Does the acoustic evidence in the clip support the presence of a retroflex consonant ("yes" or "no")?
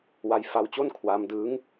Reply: no